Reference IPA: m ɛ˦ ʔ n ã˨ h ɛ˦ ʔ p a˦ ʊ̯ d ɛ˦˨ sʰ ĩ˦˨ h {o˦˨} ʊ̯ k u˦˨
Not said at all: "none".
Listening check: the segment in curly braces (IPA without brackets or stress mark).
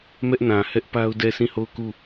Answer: o˦˨